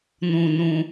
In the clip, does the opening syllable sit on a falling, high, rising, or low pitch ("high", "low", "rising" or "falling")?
low